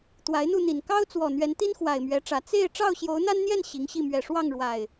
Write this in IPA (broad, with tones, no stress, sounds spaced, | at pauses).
t̪ w a˨˦ ɪ̯ n̪ u˥˨ n̪ i˨˩ n k ɑ˦ ʊ̯ t͡s w ɔ˨˩ n̪ ɥ ɛ˨˦ n t̪ i˦ n x w a˨˩ ɪ̯ m ɥ ɛ˨˦ ʈ͡ʂ ä˨˩ t͡s e˥˨ ɪ̯ ʈ͡ʂ ɑ˥˨ ʊ̯ ɕ j o˨˦ ʊ̯ n̪ a˦ n n̪ j ɛ˥˨ n ɕ i˨˦ ŋ ɕ i˥˨ m ɥ ɛ˨˩ ʂ w ɑ˥˨ ŋ ɻ w a˨˩ ɪ̯